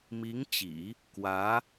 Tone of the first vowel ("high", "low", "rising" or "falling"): rising